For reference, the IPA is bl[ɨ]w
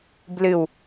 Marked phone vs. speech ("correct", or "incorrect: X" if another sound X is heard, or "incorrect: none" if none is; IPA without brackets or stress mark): correct